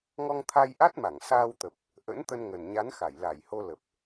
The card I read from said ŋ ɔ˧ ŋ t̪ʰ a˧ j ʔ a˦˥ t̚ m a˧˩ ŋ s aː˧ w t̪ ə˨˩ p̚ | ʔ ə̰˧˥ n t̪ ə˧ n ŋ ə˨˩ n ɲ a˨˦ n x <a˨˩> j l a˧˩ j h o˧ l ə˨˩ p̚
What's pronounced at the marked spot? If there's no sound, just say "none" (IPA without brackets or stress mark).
a˧˩